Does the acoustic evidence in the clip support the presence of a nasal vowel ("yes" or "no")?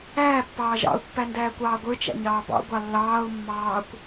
no